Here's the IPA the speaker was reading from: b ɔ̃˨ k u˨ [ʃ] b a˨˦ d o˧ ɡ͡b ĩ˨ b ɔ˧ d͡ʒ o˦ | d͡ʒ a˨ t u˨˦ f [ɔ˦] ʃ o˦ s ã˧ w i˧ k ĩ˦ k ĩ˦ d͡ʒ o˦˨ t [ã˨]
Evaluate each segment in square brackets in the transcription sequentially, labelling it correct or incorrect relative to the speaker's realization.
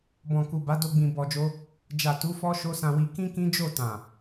incorrect: none, correct, correct

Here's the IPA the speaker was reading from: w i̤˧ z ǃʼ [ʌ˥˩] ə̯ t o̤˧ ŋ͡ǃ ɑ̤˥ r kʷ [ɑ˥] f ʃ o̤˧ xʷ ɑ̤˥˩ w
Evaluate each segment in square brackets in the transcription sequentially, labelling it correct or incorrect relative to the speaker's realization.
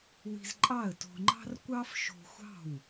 incorrect: ɑ˥˩, correct

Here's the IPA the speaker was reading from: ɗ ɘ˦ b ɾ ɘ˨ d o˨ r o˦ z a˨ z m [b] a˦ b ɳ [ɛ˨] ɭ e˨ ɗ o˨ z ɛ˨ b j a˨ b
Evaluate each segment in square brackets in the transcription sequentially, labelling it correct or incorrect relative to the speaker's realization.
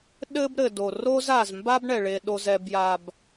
correct, correct

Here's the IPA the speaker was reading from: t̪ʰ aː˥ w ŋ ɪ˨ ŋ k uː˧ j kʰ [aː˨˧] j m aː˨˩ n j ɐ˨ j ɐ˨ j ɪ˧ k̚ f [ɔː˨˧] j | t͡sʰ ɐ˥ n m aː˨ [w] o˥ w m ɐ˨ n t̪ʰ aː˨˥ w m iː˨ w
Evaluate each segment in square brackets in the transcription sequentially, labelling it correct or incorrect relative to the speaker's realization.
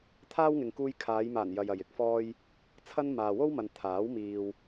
correct, incorrect: ɔː˥, correct

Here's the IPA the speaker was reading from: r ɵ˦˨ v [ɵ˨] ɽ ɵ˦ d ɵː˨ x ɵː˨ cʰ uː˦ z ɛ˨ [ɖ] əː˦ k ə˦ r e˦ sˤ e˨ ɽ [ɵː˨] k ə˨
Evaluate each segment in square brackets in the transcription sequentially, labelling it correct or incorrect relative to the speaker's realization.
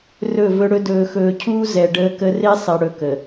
incorrect: ɵ˦, correct, incorrect: ɵ˨

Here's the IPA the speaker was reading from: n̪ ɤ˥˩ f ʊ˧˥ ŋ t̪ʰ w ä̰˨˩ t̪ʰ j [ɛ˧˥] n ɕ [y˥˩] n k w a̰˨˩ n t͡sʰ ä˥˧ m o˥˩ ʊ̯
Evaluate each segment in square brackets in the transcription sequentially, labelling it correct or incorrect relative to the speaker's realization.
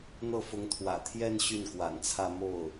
incorrect: ɛ˥˧, correct

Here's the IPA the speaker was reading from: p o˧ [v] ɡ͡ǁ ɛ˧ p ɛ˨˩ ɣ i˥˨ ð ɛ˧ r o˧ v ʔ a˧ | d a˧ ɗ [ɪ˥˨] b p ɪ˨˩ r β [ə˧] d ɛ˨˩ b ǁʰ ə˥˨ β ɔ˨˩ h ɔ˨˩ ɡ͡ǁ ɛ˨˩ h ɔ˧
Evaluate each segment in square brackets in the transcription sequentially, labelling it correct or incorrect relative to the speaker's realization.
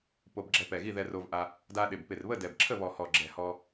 incorrect: b, incorrect: ɪ˨˩, incorrect: ə˥˨

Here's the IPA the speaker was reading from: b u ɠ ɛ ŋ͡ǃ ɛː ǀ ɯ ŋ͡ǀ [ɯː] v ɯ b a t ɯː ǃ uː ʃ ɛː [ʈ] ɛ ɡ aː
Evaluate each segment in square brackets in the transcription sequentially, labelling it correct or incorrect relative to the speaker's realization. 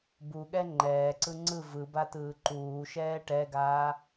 incorrect: ɯ, correct

